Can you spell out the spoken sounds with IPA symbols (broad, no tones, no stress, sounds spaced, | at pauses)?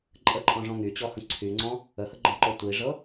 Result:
ǃʼ ə ǃʼ ɔ̃ ʐ ɔ̃ ŋ y t͡ɕ ɔ h ə̃ ǀʰ y ŋ͡ǀ ɔ̃ | ə h ə ɡ͡ǃ ɔ̃ ǃ ɔ tʷ i ʐ ɤ